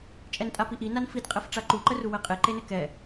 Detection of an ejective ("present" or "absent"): present